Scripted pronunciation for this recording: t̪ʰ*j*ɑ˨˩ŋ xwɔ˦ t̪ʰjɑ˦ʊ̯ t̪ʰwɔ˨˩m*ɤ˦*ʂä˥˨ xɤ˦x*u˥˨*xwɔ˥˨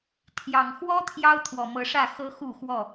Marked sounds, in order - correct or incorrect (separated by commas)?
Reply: correct, incorrect, correct